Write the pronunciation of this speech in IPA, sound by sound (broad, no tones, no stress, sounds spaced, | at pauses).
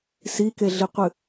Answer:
s i k e ɮ i qʷ ɨ